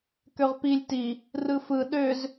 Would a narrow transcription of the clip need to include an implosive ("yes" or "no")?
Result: yes